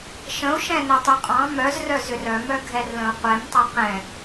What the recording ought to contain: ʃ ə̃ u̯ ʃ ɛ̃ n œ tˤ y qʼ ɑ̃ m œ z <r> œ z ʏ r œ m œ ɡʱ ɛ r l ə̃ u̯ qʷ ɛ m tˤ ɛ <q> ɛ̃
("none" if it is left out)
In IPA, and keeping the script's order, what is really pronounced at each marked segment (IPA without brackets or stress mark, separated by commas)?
r, q